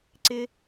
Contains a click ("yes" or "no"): yes